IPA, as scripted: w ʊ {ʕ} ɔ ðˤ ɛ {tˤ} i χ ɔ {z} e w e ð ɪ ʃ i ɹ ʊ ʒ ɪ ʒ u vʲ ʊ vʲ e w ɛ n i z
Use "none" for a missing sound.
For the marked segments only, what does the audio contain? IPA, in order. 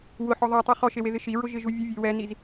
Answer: ħ, tˤ, ʃ

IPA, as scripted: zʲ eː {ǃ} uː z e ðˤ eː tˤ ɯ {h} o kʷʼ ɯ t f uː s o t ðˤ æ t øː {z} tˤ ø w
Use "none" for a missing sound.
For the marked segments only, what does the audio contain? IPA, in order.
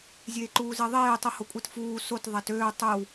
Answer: ǃ, h, none

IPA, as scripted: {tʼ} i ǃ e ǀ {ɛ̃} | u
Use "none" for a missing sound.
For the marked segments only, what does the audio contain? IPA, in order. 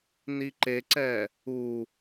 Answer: n, ɛ

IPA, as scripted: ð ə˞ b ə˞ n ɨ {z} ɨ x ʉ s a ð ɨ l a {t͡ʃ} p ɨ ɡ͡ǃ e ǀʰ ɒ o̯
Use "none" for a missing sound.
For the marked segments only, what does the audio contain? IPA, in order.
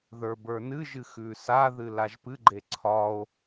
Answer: ʒ, ʒ

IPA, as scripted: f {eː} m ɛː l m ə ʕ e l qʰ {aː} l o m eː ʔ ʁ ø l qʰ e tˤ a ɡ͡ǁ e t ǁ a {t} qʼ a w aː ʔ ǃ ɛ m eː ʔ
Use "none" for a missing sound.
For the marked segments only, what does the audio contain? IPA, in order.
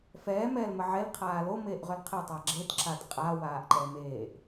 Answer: ɛː, aː, t

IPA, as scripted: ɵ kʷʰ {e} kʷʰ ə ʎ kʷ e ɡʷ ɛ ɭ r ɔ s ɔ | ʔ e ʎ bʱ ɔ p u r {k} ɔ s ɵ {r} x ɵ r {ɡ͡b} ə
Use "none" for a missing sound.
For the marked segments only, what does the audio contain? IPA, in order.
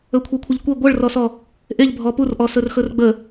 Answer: e, ʔ, r, ɡ͡b

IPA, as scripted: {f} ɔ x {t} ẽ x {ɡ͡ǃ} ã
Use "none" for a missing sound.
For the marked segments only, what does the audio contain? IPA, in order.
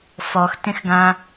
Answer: f, t, ɡ

